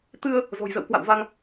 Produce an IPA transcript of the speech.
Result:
t̪ ɨ˧ ə̯ | z o̤˨˩ j z ə̰˧˨ w k w a̰˧˨ w v a˧ ŋ

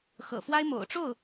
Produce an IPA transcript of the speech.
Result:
x ɤ̰˨˩ f w a˥ ɪ̯ m o̰˨˩ ʊ̯ ʈ͡ʂ o˥˩ ʊ̯

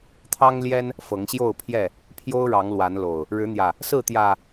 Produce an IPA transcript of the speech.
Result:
t̪ʰ ɑ˦ ŋ l j ɛ˦ n | f ɤ˨˦ ŋ ɕ j o˥˨ ʊ̯ pʰ j ɛ˥˨ | pʰ j o˦ ʊ̯ ɻ ɑ˨˦ ŋ l w a˨˦ n l o˨˩ ʊ̯ | ɻ ɻ̩˨˦ n̪ j ä˨˩ | s ɹ̩˥˨ t̪ j ä˨˩

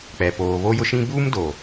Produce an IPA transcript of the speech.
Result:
k͡p ɛ˨ p oː˨ β o˦ j ʊ˦ ʃ ĩ˦ b uː˦ m d oː˨

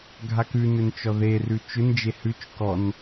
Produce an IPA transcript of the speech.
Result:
ɡʱ a k ʉ n ʏ n t͡ʃ ɔ ð e r ʉ t͡ʃ ʏ n d͡ʒ e h ʉ t͡ʃ k ɔ n

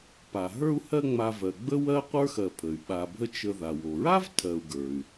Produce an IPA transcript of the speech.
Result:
p a˩ ɦ ə˞˦ u̯ h ɜ˦ ŋ͡m a˨ v ɜ˩ ɡ͡b ə˥ w ɜ˥ qʷ ə˞˥ x ɜ˨ pʰ ə˩ y̯ ɓ a˨ bʱ ə˥ t͡ʃ ə˨ ð a˩ w o˩ ɹ a˥ v tʰ ɜ˨ u̯ ɡ ə˞˩ y̯

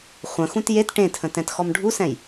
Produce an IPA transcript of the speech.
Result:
χʷ ə̃ x ũ t j e t ʈ ẽ tʰ ə̃ t ɛ̃ t x ɔ m ɖʱ u s ɛ̃ j

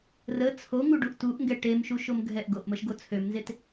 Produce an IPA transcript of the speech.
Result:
r ə t͡sʰ o ŋ u ɖ u ʔ t u ʔ ŋ ɡ ɛ ʈ e m ʃ u ʃ o m ɡʱ ɛ ʔ ɡ o ʔ m ə ʃ ɡ o t͡sʰ ø m n z e t

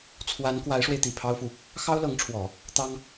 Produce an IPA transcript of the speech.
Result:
t͡sʰ w a˧˥ n k w a˧˥ ɪ̯ ʂ w e˧ ɪ̯ t̪ i˨˩ pʰ ɑ˥ ʊ̯ f u˨ | x ɑ˥ ʊ̯ l ɤ˧˥ ŋ ʈ͡ʂʰ w ɔ˨˩˦ | t̪ ɑ˥ ŋ

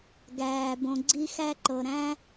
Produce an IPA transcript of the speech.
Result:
ɡ æː˩ b õ˨ ɡ͡ǀ i˦ x æ˦ ǃ ɤ˨ ɾ æ̃˥

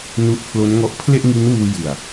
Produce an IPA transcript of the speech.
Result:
n u˦˥ ʔ pʰ l o˦˥ n ŋ ɔ˦˥ ʔ pʰ l e˥˩ ʔ ŋ i˦˥ n w uː˧ j ɯ˨˩ a̯

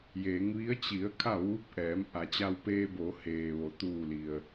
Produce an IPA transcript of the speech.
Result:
j eː˩˧ ŋ ʋ i˧˥ ə̯ t͡ɕ i˩˧ ə̯ kʰ a˥˨ ʋ uː˧˥ p̚ ʔ ɛː˩˧ m ʔ a˩˧ t͡ɕ a˧ w p eː˧ b o˩˧ h eː˩ ʋ o˩ t̪ uː˧˩ l i˩ ə̯

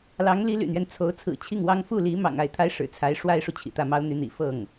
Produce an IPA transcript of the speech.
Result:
l ɑ˧˥ ŋ l i˧˥ l y̰˨˩ n̪ ɥ ɛ˦ n t͡sʰ o˧˥ ʊ̯ t͡sʰ ɹ̩˨˩ t͡ɕʰ i˥˩ ŋ w ɑ˥ ŋ f u˥˩ l i˧˥ m ɑ̰˨˩ ŋ a˥˩ ɪ̯ t̪ʰ a˥ ɪ̯ ʂ ɻ̩˨˩ t͡sʰ a˧˥ ɪ̯ ʂ w a˥ ɪ̯ ʂ u˨ t͡ɕʰ ḭ˨˩ t̪ ä˥˩ m ɑ˥ ʊ̯ n̪ y˧˥ n̪ ḭ˨˩ f ɤ˥˩ ŋ

